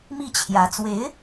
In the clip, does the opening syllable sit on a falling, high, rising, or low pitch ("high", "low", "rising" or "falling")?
falling